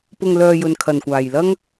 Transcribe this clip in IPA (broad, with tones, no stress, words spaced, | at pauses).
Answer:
pʊ˨ŋlœː˨ jɵ˨nkʰɐ˨˩nkʷaː˨˩j lɐ˧ŋ